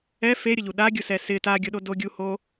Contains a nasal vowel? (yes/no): no